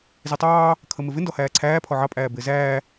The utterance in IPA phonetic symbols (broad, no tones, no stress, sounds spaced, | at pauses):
z i tˤ ɑː | kʰ ə m ɪ v ɪ n d ɔ h æː ǀʰ æː pʰ ɔ ʕ ɑ pʼ æː b ɪː z æː